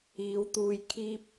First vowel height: high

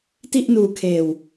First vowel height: high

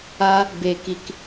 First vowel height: low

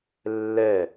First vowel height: mid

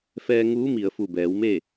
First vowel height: mid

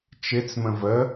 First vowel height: high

